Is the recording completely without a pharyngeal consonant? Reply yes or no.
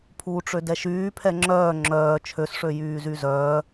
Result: yes